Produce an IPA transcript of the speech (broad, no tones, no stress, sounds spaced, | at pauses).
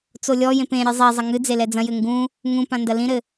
t͡s o lʲ ɔ j ẽ p ẽ ɾʲ ɨ zˤ e zˤ ɐ ŋ ɨ d͡z e l ɛ d͡z ɐ̃ j ɘ ŋ ɡ ũ | ŋ ũ p ã n d ɐ l ĩ ɾ ɘ